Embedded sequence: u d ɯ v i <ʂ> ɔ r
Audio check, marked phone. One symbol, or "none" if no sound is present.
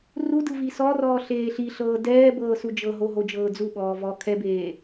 s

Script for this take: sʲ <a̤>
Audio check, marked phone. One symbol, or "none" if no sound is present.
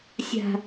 a̤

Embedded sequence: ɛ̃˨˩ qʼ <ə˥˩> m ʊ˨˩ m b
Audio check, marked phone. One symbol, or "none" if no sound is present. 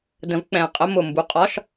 ə˧˥˧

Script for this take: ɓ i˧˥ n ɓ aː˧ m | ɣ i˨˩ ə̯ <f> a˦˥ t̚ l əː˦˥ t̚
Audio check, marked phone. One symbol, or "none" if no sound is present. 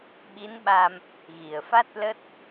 f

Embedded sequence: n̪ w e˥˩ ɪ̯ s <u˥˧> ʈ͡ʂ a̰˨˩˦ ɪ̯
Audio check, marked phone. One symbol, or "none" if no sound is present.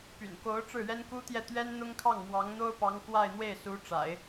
u˧˥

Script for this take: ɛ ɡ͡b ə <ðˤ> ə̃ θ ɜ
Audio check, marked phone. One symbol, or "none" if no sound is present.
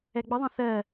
ðˤ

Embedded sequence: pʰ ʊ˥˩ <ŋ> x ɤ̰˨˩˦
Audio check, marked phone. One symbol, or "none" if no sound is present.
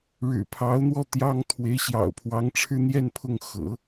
ŋ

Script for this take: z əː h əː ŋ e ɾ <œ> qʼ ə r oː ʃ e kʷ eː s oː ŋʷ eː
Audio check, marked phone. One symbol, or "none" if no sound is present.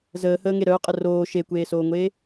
œ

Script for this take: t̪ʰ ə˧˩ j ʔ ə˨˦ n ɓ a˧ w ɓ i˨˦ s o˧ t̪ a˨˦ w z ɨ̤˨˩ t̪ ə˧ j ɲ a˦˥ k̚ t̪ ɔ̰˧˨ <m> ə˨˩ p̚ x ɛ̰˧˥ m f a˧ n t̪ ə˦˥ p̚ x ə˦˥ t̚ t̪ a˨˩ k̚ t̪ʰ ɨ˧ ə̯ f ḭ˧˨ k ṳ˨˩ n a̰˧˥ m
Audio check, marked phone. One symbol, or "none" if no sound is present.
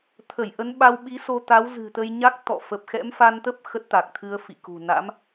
f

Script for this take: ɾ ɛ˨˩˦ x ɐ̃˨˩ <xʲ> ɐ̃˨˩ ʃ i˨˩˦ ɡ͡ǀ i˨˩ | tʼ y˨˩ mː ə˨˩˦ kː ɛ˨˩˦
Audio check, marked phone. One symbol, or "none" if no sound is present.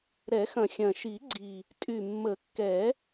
xʲ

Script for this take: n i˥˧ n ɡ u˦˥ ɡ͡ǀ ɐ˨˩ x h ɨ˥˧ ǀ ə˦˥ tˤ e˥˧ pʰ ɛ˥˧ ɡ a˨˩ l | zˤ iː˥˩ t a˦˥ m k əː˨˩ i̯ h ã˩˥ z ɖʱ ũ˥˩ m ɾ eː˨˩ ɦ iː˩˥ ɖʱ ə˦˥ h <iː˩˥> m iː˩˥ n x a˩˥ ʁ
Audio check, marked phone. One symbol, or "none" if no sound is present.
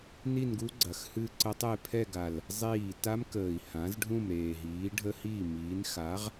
iː˥˩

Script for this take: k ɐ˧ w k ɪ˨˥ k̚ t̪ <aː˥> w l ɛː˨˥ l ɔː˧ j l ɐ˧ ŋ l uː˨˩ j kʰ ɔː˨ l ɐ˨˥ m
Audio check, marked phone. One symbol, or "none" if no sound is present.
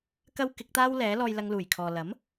aː˥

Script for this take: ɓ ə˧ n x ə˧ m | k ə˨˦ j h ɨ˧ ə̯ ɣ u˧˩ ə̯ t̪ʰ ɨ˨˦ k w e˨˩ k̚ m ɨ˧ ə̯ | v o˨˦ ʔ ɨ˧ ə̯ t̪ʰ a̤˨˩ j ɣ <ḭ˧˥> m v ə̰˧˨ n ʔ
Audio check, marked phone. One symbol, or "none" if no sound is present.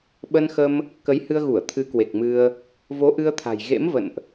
ḛ˧˥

